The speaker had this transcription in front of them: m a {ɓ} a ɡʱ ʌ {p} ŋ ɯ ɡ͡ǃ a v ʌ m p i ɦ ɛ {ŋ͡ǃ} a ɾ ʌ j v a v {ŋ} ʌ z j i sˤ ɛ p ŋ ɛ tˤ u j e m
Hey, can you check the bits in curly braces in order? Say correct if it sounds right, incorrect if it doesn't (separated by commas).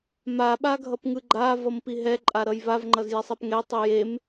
correct, correct, incorrect, incorrect